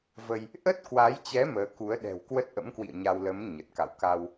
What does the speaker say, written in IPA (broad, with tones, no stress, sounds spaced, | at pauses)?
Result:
v ə˧ j | ʔ ə˦˥ t̚ k w a˨˦ j t͡ɕ ɛ˨˦ m əː˨˦ k u˨˦ ə̯ ɗ ɛ̤˨˩ w k w ə˦˥ t̚ ʔ ə̰˧˥ m k w ḭ˧˨ ə̯ ɲ a˧ w l ə˨˦ m ɲ ə˨˩ t̚ k a̰˧˨ w k a˧ w